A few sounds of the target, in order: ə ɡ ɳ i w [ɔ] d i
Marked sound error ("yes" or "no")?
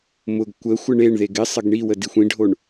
yes